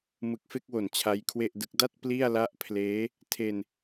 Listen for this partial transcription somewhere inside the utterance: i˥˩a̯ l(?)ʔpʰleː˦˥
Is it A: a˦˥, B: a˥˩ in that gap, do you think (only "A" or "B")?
A